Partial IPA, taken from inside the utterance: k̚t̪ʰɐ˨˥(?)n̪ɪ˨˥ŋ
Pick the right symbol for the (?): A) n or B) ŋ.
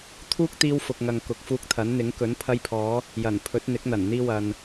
A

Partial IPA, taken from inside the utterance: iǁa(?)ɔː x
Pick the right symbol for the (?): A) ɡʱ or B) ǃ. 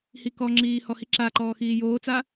B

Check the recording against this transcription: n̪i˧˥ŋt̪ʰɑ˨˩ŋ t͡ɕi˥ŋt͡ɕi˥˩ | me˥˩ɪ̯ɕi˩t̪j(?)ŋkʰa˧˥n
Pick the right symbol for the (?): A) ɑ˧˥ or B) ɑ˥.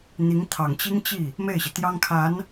B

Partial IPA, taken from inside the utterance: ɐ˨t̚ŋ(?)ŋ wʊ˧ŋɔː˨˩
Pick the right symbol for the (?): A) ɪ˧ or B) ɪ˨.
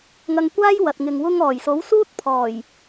B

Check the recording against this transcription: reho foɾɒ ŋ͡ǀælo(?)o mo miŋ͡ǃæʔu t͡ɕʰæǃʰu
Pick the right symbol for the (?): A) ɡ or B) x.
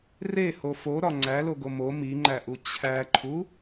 A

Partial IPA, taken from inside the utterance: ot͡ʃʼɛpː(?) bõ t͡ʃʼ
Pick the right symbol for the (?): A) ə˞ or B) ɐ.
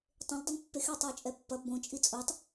B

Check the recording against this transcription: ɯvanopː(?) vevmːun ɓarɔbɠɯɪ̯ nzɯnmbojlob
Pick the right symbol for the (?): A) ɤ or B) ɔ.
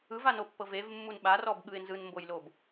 A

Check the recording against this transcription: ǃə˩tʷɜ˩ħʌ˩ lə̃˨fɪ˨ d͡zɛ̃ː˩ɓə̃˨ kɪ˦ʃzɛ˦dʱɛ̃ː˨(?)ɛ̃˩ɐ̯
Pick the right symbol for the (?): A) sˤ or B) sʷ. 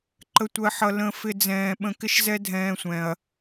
B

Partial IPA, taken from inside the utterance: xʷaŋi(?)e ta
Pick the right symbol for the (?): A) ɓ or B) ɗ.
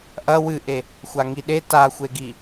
B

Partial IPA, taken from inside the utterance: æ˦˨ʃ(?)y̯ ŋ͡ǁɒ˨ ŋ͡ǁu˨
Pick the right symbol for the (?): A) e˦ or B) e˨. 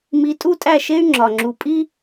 A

